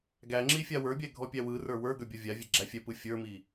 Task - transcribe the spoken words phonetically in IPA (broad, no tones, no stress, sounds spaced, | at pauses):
ɡ æ ŋ͡ǁ i fʲ a w ə˞ bʲ ɛ ɡʱ ɔ pʲ æ w ɯ r ə˞ w ə˞ ɡ ə˞ bʲ ɔ vʲ a vʲ ɛ ɡ͡ǁ æ fʲ ɛ p ɯ fʲ ə˞ m i